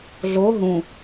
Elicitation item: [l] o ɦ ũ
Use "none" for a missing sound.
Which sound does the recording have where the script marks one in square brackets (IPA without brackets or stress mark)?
ɮ